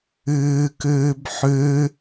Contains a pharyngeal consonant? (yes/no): yes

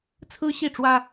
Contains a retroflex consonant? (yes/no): yes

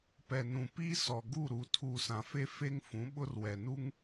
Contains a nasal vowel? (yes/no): yes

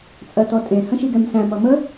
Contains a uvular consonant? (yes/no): no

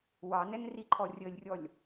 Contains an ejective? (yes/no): no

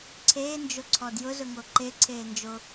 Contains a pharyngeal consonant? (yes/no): no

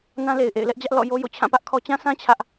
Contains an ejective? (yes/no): no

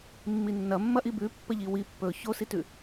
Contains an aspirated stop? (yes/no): no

